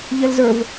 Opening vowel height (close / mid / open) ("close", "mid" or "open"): mid